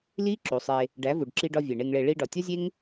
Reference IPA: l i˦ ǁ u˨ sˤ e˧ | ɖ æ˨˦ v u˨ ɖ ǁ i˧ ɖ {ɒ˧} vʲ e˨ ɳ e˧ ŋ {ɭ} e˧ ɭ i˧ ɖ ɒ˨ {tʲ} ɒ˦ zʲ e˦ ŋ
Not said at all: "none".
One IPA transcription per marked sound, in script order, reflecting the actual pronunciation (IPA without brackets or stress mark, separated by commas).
ɒ˧, ɭ, tʲ